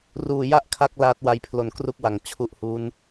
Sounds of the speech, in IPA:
ruː˧ja˥˩ʔkʰa˦˥k̚ laː˦˥t̚ wa˦˥jpʰlo˧n kru˥˩k̚wa˨˩ŋ t͡ɕʰu˦˥ʔhu˦˥n

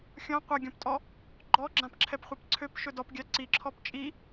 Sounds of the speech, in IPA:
xʲɔ̃ qʷaɡʲɔ̃ptʼɔ | ɡ͡ǃɔɡ͡ǁãpǁʰɛpχʷɛp ǀʰøpʃɵ dɔpɡʲa ǀiǁʰɔp t͡ʃʼi

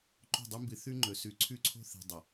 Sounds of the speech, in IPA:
ǃo̤˦˨dˤu˦mbɨ˨ θʉ˦ŋ͡ǃɵ˨ sʉ˨ǀʰʉ˦ǀʰo̤˦θe̤˨ dˤɐ˨

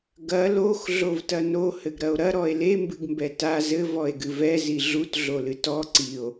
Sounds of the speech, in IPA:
ɡɐ lox ɮovtɐno hɘɡɾɐo̯ɾɐ ɾɔe̯le mbɨɡmbɛta zɘ vɔe̯ɡɨvɛ ziɮut ɮolɨtɔ ǀio̯

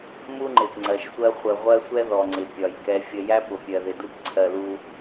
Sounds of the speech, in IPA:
mu˦ŋ͡ǃɪ˨p ŋ͡ǀɜ˨ʃsʷɜ˦ χʷə˨ ʁʷɜ˦sʷɛ˦ ðɔ˨ŋ͡ǀɪ˨ pʲɒ˨j kɛ˨fʲə˨jæ˦ pʊ˨pʲɜ˨ ðɪ˨du˦pǀʰɜ˨ lu˦

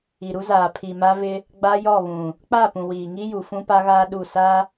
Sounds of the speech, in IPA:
i˨ɾu˦zaː˨ pʰi˨ ma˦vɪ˦ | ɡ͡ba˦jɔ˦˨βũ˨ | k͡pa˦˨pũ˨ wiː˨ ŋi˦ ju˨fũ˦pa˦ɣaː˦ ɗu˦˨ sa˦

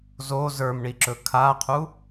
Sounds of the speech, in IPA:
zo zə˞mɳiǁɵ kʰaqʰu

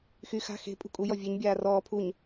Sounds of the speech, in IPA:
xy xa̤ xe̤ pʼṳkʼujɔ vʲeɲbʲaː rɔː pʰuɲ

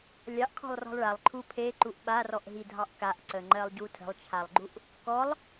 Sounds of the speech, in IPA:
lʲɑʔkʰɔ̤lˠrɔ̤lˠ ɭalˠǃʰu pʰeǃuʔ ɓarɔʔɦidʱɑʔ kaʔǀəŋ͡ǃɜlˠɟu tʰə̤lˠt͡ʃʰalˠɡ͡ǃuʔ | kɔlˠ

